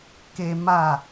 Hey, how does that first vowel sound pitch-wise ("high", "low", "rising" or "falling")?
high